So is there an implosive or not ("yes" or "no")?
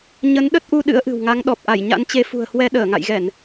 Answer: yes